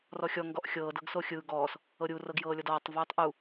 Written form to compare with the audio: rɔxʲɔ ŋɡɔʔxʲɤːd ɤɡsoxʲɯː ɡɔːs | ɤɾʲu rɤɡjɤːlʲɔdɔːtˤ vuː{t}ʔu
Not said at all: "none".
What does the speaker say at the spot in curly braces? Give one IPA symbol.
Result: tˤ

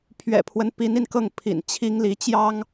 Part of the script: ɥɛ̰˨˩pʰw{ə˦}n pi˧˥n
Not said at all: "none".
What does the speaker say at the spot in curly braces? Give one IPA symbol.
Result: ə˦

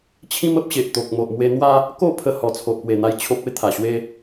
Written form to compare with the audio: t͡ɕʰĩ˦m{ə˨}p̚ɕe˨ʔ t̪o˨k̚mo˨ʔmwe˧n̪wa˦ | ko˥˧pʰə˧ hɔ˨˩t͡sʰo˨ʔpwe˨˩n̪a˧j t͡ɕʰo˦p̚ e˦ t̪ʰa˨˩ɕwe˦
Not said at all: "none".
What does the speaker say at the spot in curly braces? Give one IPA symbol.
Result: ə˦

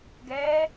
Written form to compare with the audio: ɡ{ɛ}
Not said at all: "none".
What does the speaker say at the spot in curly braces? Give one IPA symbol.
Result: ɛ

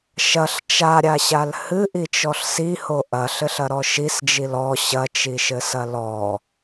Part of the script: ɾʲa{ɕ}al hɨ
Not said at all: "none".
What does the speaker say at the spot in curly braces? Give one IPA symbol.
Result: ɕ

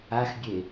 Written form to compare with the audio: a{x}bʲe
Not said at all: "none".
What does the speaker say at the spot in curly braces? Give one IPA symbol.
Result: x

